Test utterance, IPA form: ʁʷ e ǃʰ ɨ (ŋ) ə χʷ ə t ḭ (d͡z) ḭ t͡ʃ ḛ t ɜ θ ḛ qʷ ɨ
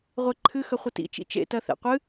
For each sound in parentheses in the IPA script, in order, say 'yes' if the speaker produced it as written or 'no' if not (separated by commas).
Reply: no, no